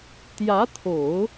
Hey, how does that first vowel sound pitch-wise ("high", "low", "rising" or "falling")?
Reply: rising